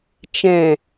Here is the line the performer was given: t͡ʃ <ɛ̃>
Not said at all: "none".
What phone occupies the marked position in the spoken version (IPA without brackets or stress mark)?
ɛ̃